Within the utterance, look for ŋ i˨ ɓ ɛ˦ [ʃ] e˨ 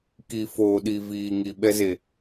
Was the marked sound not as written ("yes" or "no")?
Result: yes